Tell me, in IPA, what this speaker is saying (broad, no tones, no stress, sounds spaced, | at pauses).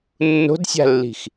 nː o̤ d sʲ a̤ lː i̤ x